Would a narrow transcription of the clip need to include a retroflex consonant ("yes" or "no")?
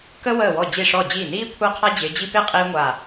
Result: yes